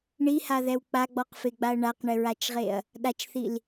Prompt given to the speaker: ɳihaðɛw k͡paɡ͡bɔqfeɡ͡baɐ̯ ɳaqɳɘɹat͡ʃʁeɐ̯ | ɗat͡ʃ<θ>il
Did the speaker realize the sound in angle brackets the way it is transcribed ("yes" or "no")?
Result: yes